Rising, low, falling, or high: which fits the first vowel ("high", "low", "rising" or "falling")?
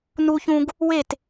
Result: high